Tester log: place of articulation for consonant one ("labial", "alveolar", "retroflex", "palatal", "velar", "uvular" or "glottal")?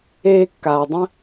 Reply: velar